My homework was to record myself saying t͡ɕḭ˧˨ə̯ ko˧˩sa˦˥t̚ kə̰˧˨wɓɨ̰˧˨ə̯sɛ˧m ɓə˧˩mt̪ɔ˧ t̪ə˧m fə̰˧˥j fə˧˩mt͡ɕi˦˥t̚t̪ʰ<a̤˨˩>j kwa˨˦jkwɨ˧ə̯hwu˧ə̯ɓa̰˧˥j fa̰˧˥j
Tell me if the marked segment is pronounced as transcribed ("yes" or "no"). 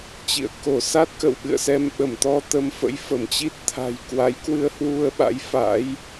yes